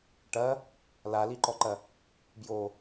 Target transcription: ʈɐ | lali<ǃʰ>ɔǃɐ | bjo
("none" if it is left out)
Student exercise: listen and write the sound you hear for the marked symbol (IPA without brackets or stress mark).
ǃ